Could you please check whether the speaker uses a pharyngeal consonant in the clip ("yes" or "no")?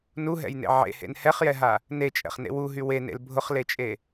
yes